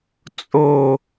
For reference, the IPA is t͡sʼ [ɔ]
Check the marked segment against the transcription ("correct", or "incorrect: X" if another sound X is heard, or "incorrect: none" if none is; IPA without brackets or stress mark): incorrect: o